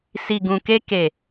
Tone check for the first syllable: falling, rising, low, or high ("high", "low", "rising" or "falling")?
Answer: low